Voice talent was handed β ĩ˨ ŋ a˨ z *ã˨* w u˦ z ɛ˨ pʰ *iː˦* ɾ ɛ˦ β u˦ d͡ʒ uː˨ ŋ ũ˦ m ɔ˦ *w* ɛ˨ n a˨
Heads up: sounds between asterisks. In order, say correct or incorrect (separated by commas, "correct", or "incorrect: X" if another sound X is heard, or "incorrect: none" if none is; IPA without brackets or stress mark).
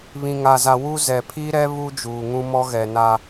incorrect: a˨, correct, incorrect: ɣ